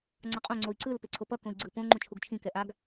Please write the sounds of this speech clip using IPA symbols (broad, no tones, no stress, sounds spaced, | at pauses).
ŋ͡ǀ ʌ qʼ õ ŋ͡ǀ o i̯ ǀ ɯ l p e ǀʰ o p ʌ k õ i̯ ɡ͡ǀ ɯ p õ ŋ͡ǃ ũ t͡ʃʰ u ɡ t͡ʃʰ ĩ k ɛ ʔ a ɡ